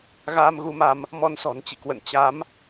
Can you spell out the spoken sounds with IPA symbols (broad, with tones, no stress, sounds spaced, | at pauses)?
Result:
ɣ aː˧ m ɣ u˧ m a˧ m | m ɔ˧ n s ɔ̤˨˩ n t͡ɕ ḭ˧˨ k w ə̰˧˨ n t͡ɕ a˨˦ m